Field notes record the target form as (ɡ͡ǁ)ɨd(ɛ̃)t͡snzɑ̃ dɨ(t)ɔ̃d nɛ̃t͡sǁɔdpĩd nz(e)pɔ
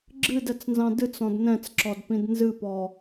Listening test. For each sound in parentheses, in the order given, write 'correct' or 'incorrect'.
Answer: correct, incorrect: ɛ, incorrect: t͡s, incorrect: ɨ

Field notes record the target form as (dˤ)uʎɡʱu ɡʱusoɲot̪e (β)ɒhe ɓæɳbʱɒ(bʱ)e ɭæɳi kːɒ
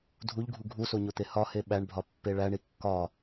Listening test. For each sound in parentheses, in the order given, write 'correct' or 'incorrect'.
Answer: incorrect: dʱ, incorrect: h, incorrect: pː

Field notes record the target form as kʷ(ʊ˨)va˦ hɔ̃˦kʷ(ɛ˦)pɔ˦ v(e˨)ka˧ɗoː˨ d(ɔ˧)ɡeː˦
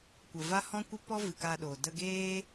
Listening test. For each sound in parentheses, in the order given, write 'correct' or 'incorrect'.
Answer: incorrect: ə˨, incorrect: ə˦, incorrect: ɨ˨, incorrect: ə˧

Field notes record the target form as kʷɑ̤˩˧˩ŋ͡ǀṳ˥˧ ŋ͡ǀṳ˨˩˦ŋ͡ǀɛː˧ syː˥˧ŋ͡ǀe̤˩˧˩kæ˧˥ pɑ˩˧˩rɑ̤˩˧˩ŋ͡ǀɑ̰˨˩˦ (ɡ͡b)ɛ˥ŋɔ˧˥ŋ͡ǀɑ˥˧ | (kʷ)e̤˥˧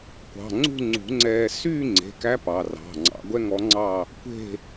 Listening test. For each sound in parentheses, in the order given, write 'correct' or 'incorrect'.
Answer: incorrect: ɡʷ, correct

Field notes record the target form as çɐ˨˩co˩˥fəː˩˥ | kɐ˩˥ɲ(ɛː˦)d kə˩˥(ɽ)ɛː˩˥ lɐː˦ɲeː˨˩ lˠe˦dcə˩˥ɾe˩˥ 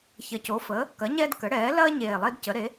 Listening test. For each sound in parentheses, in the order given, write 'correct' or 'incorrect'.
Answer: correct, correct

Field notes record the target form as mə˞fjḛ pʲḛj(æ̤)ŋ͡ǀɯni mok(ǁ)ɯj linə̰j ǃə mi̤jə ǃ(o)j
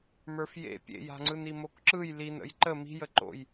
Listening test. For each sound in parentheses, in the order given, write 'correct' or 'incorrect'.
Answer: incorrect: a̤, correct, incorrect: o̰

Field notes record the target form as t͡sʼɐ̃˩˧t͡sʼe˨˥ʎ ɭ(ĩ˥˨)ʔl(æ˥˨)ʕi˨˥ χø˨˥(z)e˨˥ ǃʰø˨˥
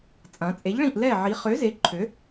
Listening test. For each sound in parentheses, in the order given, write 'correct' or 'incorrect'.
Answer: correct, incorrect: ɛ˥˨, correct

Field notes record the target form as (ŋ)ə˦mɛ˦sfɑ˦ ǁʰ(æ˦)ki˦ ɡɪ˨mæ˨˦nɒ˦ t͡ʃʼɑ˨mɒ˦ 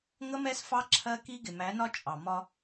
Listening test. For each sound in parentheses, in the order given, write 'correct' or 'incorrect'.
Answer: correct, incorrect: ɜ˦

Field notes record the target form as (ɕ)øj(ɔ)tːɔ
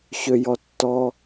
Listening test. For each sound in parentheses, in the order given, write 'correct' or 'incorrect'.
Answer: correct, correct

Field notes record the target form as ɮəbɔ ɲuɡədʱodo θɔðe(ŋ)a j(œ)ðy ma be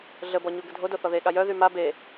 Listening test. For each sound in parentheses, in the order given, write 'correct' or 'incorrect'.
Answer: incorrect: ɠ, correct

